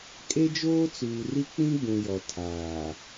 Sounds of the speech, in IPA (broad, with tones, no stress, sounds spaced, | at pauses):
kʼ e˦ d͡ʒ oː˦ t͡s uː˨ r i˦ k͡p ĩ˦ ɡ͡b ũ˨ j ɔ˨ tʰ aː˨